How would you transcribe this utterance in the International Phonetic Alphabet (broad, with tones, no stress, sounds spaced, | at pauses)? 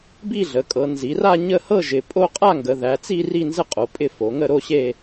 b i˥˧ ɮ ə˩˧ kʼ ɤ˩˧ n z i˩˧ r a˥˧ ɲ ə˥˧ h ɤ˥˧ ʒ ɪ˩˧ pʼ o˥˧ qʼ a˥˧ ŋ ɡ ə˩˧ ð æ˩˧ t͡s i˥˧ r i˥˧ n z ə˥˧ qʼ o˩˧ pʼ ɪ˥˧ f o˩˧ ŋ ə˥˧ ɾ o˥˧ ɕ e˥˧